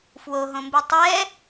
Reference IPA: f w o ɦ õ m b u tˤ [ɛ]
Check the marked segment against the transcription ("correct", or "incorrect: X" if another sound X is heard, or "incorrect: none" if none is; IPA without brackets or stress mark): correct